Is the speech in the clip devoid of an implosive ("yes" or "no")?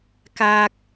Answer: yes